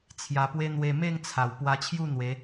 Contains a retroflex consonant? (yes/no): no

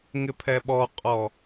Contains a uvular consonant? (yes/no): yes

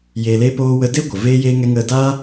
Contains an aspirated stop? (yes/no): no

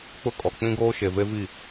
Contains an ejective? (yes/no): yes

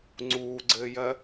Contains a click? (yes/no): yes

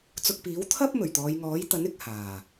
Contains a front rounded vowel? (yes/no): no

